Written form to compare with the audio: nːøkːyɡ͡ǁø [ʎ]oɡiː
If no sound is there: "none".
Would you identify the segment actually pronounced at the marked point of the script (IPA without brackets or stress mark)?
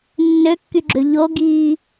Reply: ʎ